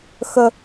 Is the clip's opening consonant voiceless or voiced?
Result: voiceless